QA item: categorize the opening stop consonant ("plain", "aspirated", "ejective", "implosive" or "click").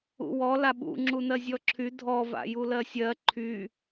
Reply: implosive